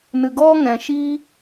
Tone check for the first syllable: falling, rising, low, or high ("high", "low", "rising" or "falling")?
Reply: low